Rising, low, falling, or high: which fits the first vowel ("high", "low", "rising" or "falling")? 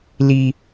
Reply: high